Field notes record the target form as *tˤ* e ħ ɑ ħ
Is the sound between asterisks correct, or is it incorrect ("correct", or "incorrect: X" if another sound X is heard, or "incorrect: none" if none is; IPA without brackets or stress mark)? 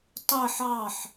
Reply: correct